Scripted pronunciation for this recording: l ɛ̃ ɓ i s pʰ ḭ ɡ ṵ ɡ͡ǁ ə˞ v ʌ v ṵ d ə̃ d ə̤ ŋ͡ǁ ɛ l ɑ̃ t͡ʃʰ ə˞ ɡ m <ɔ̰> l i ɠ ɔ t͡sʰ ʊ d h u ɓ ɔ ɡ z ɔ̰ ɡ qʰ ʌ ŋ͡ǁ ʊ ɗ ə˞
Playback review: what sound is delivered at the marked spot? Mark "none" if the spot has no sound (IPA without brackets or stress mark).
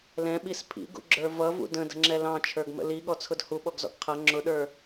ə̰